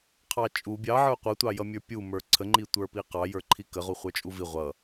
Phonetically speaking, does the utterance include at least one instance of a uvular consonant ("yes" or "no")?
yes